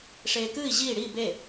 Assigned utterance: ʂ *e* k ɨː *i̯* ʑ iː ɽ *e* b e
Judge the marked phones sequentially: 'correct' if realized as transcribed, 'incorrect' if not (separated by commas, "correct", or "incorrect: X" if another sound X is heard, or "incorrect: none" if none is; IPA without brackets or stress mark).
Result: incorrect: eː, correct, incorrect: i